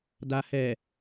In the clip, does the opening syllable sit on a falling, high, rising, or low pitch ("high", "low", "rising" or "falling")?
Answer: low